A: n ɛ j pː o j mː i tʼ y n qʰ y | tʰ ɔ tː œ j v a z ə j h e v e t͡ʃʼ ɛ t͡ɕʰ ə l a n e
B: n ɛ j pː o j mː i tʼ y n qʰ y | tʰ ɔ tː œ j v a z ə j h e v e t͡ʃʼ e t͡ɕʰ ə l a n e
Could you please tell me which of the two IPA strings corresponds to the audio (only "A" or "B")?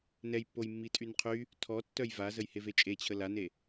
B